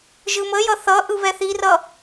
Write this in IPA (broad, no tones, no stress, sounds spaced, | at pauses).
ʒ ɯ m ə j ʌ θ ʌ ʔ ɯ β ɛ θ i r ʌ